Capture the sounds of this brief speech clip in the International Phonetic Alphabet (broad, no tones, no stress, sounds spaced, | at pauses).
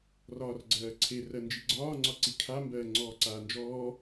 r ɒː r ɡ͡ǀ ɜː ǀʰ e r ɜ n d͡ʒ i ɡ͡ǀ ɒː ŋ͡ǀ ɒ ǀ i kʰ a m b ɜː ŋ͡ǀ ɔː ǀ aː n d͡ʒ ɔː